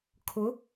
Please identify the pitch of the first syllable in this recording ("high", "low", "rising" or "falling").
rising